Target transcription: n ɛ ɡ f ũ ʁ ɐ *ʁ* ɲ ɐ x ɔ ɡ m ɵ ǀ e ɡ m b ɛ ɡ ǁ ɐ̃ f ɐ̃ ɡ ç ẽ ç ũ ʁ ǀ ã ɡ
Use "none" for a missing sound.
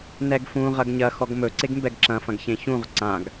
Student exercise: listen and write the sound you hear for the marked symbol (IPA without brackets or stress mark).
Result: ɡ